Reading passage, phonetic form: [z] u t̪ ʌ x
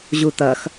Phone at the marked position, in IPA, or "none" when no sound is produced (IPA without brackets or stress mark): ʑ